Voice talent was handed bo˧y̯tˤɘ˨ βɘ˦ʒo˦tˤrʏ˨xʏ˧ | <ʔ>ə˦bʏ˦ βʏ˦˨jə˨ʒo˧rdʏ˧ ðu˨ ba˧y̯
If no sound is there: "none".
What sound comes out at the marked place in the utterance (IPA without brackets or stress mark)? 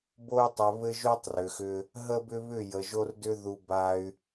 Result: ɦ